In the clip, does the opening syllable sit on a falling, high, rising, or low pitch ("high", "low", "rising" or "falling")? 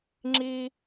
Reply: high